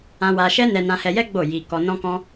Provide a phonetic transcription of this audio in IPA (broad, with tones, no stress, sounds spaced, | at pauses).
ã˧ w a˧ ʃ ɛ˦ n ɛ˧ n ã˧ h ɛ˧ j ɛ˦ ɡ͡b o˦˨ j i˧ k ɔ˧ n ɔ̃˦ k ɔ̃˦